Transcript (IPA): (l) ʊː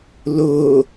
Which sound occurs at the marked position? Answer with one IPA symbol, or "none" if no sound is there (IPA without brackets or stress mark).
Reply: l